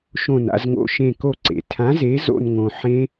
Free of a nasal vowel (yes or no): no